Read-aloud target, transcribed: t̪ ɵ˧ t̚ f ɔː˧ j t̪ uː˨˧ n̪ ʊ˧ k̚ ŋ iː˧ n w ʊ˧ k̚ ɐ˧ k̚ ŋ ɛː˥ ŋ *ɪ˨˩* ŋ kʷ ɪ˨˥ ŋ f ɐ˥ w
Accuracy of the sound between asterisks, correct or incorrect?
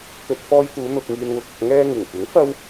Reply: correct